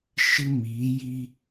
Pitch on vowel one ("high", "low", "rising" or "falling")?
high